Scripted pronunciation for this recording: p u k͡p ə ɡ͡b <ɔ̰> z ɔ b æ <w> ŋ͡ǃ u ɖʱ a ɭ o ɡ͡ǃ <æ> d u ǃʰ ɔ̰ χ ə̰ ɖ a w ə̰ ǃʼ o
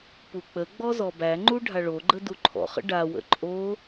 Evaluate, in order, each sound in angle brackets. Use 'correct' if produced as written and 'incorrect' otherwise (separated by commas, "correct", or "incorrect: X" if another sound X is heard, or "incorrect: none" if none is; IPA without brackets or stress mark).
incorrect: ɔ, incorrect: none, incorrect: ə